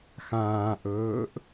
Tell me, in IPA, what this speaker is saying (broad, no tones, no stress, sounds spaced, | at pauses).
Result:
x ãː ʔ ɵː ʔ